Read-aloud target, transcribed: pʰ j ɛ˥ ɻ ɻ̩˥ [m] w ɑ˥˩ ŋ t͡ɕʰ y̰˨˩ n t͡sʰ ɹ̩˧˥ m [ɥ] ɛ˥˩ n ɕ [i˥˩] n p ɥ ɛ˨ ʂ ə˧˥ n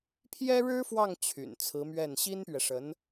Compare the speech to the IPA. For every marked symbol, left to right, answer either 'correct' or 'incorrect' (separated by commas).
incorrect, correct, incorrect